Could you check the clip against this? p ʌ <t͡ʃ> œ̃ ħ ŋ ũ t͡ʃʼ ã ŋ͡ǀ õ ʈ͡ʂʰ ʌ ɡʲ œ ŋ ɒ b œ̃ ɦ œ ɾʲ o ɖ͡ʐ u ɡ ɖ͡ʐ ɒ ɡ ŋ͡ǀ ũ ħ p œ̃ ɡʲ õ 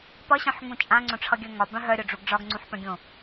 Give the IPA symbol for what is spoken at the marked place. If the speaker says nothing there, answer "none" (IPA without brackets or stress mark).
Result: ɕ